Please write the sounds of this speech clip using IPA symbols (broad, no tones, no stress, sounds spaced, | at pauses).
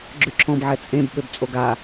ɡ͡ǁ ʉ ǁʰ ɔ̃ b ʕ ɛ t͡sʼ ẽ b ɓ ø b t͡sʼ o ɡ a